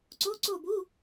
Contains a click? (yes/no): yes